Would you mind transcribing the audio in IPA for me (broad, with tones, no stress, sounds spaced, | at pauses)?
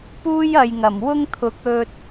p uː˥ j ɐ˨ j ŋ ɐ˨˩ m w ʊ˥ ŋ t̪ʰ ʊ˨˥ k̚ ɵ˧ t̚